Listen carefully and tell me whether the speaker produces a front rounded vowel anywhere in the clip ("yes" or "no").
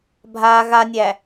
no